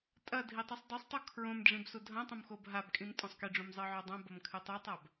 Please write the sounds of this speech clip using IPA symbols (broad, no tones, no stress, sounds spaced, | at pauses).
tʼ ɐ dʱ i tˤ i sˤ dˤ ɨ sˤ tˤ u kʰ ɹ õ m ɖ͡ʐ ĩ b s u dʱ ɐ̃ tˤ õ m x o b ɦ a b kʼ ĩ m tʼ ũ sˤ k i ɖ͡ʐ ũ m zˤ ɨ ʕ o dˤ ã b ɐ m kʰ ɨ tˤ ʉ tˤ a b